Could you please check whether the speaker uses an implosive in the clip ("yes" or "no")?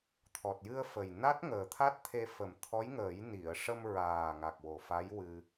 no